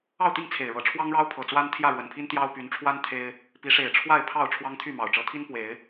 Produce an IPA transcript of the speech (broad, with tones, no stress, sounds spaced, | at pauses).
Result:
ɑ˥˨ ʊ̯ t̪ i˥˨ ŋ t͡sʰ e˨˩ ɪ̯ ɻ ɤ˨˦ ʈ͡ʂʰ w ɑ˦ ŋ ɻ ɑ˦ ʊ̯ pʰ ɤ˨˩ t͡s w a˦ n t̪ʰ j ä˥˨ ɻ w ə˨˩ n pʰ i˦ n t̪ j ɑ˦ ʊ̯ p y˨˦ n ʈ͡ʂʰ w a˦ n t̪ʰ e˦ ɪ̯ | p i˨˦ ʂ e˨˩ ɪ̯ ʈ͡ʂʰ w a˥˨ ɪ̯ pʰ ɑ˥˨ ʊ̯ ʈ͡ʂʰ w ɑ˦ ŋ t̪ʰ y˥˨ m ɑ˨˩ ʊ̯ ʈ͡ʂ ɤ˨˦ t̪ʰ i˦ n p w e˨˦ ɪ̯